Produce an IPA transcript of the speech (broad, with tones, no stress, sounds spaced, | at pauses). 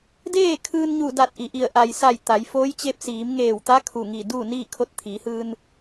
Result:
d eː˥˨ kʰ ɯː˧ n ɲ u˧˩ d a˧˩ t̚ ʔ i˩ ʔ i˧˩ ə̯ ʔ a˩ j s a˧˩ j t̪ a˩˧ j f oː˧˥ j t͡ɕ e˧˥ p̚ s iː˩˧ m ŋ eː˧˩ w t̪ a˧˥ kʰ u˧˩ ŋ i˧˩ d uː˥˨ n iː˥˨ kʰ o˧ t̚ t̪ʰ iː˩˧ h ɯː˧ n